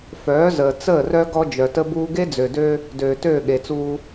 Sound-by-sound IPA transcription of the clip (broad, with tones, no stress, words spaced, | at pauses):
fœː˨˦zəː˨ t͡səː˦˨ rœ˦ ɡɔ˦ d͡ʒœ˨tə˦buː˦ ɡe˦d͡zø˨dø˦ | døː˨tøː˦˨ɠe˨t͡suː˦